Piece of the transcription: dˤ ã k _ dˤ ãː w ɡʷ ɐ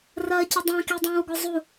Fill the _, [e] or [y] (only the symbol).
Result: e